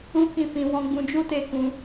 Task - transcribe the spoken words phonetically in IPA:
u˦ k ĩ˦˨ f ĩ˧ w ɔ̃˧ ɡ͡b ũ˧ d͡ʒ u˦ t e˦˨ k ũ˧

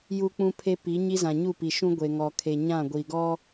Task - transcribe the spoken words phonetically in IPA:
j u˦ k͡p ũ˦ pʰ e˦ p i˨˦ ɲ i˦ z ã˨ ɲ u˦˨ p i˨ ʃ ũ˦ ɡʷ e˨ ŋ ɔ˨ kʰ e˨ ɲ ã˦˨ ɡʷ i˨ ɡ ɔ˦

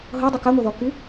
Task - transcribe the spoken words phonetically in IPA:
ɦ ɤ dˤ ə k a ŋʷ ʌ ð ɔ k y

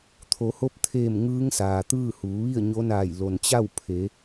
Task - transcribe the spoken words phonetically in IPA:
t̪ʰ o˩˧ h o˧˥ p̚ t̪ʰ eː˧˩ m ŋ ɯː˧˥ ŋ s aː˩ t̪ ɯː˥˨ h uː˩˧ ʋ i˥˨ ə̯ ɲ o˧˥ n aː˧˩ j l o˩ n t͡ɕ a˥˨ w pʰ e˩˧

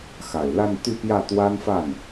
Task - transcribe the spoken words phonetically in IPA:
x a˨˩ ɪ̯ l a˥˧ n t̪ y˥˧ p j ä˥˩ t̪ w a˥ n f a˥˩ n

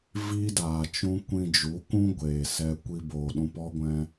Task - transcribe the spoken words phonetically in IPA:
v iː˦ d aː˨ t͡ʃ ũ˦ kʷ ĩ˧ d͡ʒ u˨˦ k ũ˦ ɡʷ eː˨ s ɛ˦ kʷ i˧ b oː˨ ɗ ũ˧ p ɔ˦ ɡʷ ɛ̃˦

